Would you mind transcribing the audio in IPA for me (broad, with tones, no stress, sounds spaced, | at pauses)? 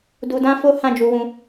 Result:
d u˧ d ã˦ f o˦ h ã˦˨ d͡ʒ u˧ w ũ˧